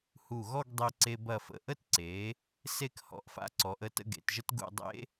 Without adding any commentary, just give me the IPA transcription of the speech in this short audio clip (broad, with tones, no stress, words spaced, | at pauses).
hu˧˩ɣɔ˥˧ɡdˤe˧ ǀe˧ bɐ˧˩fə̰˧˩ʔə˥˧t ǀe˩˧ | se˥˧khɔ̰˧ʔfa̰˧ǀɔ˩˧ʔ ə˧tə̰˧ ɡḛ˩˧tʒə˥t ɡṵ˥˧ dˤḛ˥